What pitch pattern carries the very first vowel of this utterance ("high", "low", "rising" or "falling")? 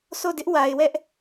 falling